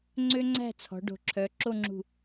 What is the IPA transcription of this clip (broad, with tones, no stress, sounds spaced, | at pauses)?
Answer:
ŋ͡ǀ ø˥ ŋ͡ǀ æ̤˥˧ t͡sʰ ɔ̤˩˧ ɖ o̤˩˧ ǁʰ œ˩˧ ǁ o˥˧ ŋ͡ǁ ṳ˧˩